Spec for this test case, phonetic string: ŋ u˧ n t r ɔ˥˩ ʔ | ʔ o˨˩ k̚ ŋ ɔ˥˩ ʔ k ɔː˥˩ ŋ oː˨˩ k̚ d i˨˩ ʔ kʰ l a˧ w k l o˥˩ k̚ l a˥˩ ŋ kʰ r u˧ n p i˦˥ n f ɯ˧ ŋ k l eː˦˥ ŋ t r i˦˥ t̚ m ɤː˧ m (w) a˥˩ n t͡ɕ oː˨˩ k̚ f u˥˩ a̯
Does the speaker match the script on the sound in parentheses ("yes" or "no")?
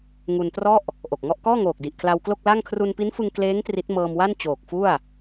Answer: yes